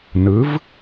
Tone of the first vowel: rising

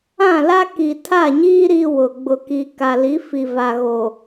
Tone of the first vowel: falling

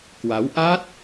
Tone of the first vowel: rising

